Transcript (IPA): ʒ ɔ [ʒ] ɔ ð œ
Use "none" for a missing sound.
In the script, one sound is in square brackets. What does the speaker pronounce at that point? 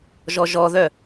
ʒ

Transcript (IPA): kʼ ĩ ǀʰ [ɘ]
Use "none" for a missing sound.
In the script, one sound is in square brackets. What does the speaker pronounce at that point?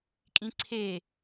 e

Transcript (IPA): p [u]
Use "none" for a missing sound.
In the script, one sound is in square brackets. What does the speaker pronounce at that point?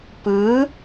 ɯ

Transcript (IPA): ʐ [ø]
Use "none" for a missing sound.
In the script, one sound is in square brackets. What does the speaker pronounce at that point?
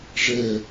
ɛ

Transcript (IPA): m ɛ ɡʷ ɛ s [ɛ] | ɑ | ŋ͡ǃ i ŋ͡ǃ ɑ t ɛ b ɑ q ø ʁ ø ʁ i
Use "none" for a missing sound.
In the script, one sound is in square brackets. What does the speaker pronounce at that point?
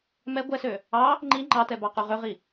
ø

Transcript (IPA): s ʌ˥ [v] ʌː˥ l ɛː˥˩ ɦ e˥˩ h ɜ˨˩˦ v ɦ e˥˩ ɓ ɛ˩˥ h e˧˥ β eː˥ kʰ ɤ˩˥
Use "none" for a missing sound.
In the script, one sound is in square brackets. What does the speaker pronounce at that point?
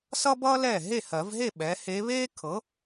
b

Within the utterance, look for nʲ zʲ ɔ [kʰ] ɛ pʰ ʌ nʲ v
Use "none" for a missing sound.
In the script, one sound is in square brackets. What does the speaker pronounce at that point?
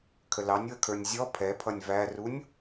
pʰ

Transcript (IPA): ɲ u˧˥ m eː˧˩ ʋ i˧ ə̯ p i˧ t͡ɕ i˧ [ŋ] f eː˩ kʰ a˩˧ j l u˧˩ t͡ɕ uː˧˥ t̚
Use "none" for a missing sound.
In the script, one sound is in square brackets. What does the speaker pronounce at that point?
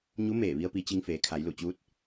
ŋ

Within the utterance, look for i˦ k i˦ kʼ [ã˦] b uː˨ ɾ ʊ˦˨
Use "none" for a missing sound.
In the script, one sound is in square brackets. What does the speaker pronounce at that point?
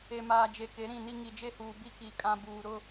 ã˦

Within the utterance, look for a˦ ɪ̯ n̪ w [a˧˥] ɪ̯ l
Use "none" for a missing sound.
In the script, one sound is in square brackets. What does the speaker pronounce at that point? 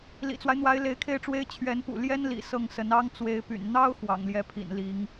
a˧˥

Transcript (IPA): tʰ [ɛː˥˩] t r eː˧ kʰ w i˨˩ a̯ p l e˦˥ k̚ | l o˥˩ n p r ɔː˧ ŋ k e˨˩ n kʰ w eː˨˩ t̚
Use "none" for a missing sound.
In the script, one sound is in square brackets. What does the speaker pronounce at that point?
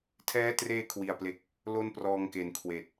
ɛː˦˥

